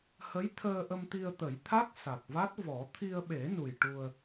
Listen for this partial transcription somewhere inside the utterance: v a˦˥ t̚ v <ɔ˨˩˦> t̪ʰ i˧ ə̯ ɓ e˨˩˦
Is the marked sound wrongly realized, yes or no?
no